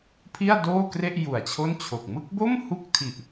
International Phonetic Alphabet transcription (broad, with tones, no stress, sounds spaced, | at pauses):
pʰ i˥˩ a̯ d oː˥˩ k r e˥˩ ʔ j u˨˩ a̯ t͡ɕʰ o˥˩ n t͡ɕʰ o˨˩ k̚ m ɯ˥˩ k̚ b o˥˩ m h u˥˩ k̚ tʰ i˨˩ ʔ